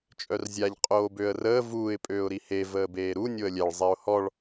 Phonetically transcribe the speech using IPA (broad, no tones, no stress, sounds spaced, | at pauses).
t͡ʃʼ œ r zʲ a ʎ qʼ oː b ø ə̯ r əː v uː ɪ̯ pʼ øː ʊ̯ ɾ i h e v əː b eː ɾ u nʲ o ə̯ lʲ ɛ ɭ zˤ i ʊ̯ h ɔ ɭ